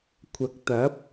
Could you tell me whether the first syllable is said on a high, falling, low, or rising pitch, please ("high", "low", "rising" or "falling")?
rising